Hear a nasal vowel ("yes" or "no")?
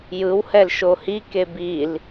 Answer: no